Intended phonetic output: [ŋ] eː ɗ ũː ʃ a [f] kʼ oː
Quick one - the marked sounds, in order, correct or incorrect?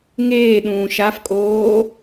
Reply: correct, correct

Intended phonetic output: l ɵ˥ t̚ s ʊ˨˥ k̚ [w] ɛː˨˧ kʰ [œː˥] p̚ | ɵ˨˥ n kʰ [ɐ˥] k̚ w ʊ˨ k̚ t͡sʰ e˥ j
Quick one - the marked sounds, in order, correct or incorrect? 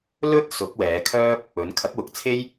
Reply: correct, correct, incorrect: ɐ˨˥

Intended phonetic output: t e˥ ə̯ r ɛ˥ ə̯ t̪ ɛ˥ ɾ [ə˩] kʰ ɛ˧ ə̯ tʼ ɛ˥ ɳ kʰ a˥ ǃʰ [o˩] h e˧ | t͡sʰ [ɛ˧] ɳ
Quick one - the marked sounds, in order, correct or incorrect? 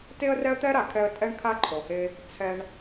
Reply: incorrect: a˩, correct, correct

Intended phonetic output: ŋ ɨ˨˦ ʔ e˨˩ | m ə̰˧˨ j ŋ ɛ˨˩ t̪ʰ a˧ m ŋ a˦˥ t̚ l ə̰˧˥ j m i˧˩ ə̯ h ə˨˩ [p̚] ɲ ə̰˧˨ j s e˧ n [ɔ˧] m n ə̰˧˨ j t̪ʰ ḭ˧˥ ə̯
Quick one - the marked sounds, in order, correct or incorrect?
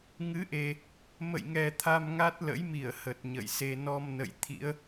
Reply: incorrect: t̚, correct

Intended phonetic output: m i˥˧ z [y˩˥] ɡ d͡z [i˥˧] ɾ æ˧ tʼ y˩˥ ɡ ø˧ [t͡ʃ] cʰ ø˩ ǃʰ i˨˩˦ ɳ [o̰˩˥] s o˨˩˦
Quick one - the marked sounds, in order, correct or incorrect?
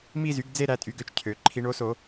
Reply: correct, incorrect: e˥˧, correct, incorrect: o˩˥

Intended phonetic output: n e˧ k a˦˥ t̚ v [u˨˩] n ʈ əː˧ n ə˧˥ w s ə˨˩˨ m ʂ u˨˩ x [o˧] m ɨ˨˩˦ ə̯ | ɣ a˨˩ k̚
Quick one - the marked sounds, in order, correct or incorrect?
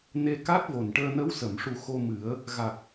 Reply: incorrect: o˨˩, correct

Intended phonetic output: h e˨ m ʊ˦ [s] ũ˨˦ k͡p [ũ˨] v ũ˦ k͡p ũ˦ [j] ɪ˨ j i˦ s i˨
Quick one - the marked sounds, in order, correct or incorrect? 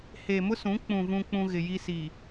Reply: correct, correct, incorrect: ɣ

